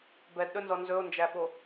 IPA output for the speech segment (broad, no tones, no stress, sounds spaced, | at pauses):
b ɛ d ɗ ɵ n z ɔ n z ɵ o̯ n d͡ʒ æ ɓ o